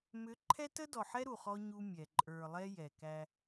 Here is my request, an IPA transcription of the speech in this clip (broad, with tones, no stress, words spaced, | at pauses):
mʏ˨˦ ǃʰɛ˦tə˦dɔ˨ħɛ˦ ɾu˨χɔ˦ ɲu˦mʲɛ˨ ǃʼə˞˨lˠɛ˦ jɛ˨kæ˦